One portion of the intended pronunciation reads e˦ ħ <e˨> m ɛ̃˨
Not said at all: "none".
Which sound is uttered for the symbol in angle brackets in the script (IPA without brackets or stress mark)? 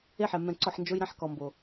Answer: ɛ˨